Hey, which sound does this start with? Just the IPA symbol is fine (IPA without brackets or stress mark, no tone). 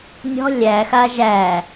nʲ